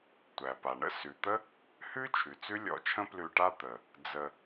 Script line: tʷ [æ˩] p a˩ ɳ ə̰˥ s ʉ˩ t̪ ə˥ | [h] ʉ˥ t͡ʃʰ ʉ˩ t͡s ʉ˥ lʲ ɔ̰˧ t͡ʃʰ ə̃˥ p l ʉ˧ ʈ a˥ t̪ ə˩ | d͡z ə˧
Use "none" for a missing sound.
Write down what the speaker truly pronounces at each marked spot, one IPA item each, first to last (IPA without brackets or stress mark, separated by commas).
æ˩, h